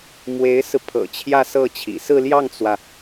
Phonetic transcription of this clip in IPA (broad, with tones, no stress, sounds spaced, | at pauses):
m w e˧˥ ɪ̯ s ɹ̩˧ pʰ ɤ̰˨˩ t͡ɕʰ j ä˥˧ s ɤ˥˩ t͡ɕʰ ḭ˨˩ s ɹ̩˥˧ l j ɑ˥˩ ŋ t͡s w ä˩